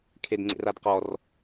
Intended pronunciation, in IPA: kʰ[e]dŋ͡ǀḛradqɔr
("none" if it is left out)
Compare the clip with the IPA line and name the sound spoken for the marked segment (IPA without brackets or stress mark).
e